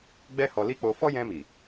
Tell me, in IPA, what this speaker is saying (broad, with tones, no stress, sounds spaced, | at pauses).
ɡ͡b ɛ˦ h ɔ˧ l i˦ k͡p o˧ f ɔ˦ j ɛ̃˧ m i˨